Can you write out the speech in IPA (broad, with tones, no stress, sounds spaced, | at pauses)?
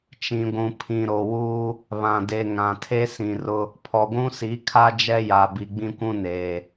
t͡ʃ ĩ˨ ɡʷ ũ˨ pʰ ĩ˨ ɾ o˨ w uː˦ | β ã˨ d e˨ ŋ ã˨ tʰ e˦ s ĩ˨ r ʊ˦ | pʰ ɔ˨ ɡʷ ũ˦ s i˨˦ kʰ a˦ d͡ʒ ɛ˦ j a˨ b i˨ ɡ͡b ĩ˦ kʷ ũ˦ n eː˨